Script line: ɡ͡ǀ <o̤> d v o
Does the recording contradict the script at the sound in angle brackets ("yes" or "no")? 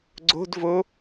no